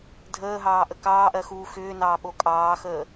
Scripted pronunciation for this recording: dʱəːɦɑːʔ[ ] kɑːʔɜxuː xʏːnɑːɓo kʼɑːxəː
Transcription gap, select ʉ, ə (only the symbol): ə